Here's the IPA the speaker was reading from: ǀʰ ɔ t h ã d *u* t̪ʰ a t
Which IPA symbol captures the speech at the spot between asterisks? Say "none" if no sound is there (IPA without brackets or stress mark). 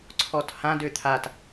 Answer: ø